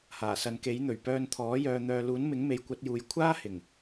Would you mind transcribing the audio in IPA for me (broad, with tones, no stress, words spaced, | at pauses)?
haː˨˩sɐ˨˧nke˨˥jn̪ɵ˨˩ɥ pœː˧nt̪ʰɔː˨˥jœː˧ n̪œː˧ luː˨˥nmɪ˨˥ŋme˨˥j kʷɐ˨˥t̚juː˨˧j kʷʰaː˥hɪ˨˩ŋ